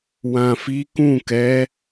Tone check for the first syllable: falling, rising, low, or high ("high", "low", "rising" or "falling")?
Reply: low